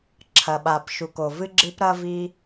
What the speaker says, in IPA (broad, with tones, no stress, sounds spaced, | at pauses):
ǁʰ ɐ˩ ɓ a˩ p ʃ u˩ k o˩ v ɨ˥ ɡ͡ǁ ɨ˥ p ɾ ɐ˥ v i˥